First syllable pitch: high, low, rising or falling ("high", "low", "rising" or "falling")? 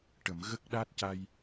low